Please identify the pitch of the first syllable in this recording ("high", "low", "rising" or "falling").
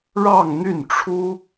falling